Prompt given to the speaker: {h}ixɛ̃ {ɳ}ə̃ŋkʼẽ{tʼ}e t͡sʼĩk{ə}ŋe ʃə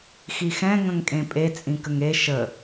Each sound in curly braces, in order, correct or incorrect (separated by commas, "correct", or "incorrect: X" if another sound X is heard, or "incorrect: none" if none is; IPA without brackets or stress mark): incorrect: x, incorrect: ŋ, incorrect: pʼ, correct